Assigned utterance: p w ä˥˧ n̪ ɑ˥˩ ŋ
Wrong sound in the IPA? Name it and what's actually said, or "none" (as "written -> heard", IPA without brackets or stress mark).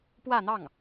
none